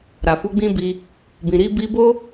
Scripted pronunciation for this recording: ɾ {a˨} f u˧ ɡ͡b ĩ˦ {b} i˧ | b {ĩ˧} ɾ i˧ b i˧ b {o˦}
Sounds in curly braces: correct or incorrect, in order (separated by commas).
correct, correct, incorrect, correct